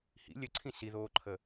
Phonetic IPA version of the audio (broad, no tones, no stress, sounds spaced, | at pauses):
h ḭ lʲ ə ǀʰ ĩ s i ð oː ǃʰ ə